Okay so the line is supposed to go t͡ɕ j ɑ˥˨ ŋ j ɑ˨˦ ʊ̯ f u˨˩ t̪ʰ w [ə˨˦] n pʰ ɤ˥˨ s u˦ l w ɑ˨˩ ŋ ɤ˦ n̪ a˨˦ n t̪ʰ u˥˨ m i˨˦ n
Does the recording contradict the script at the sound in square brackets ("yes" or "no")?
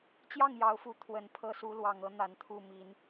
no